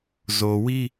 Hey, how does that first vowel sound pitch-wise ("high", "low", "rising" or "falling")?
low